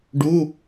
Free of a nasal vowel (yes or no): yes